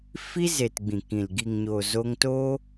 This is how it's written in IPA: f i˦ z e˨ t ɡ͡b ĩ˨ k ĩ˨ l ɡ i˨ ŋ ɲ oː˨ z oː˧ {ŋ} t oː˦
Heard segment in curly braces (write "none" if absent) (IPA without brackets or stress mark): ŋ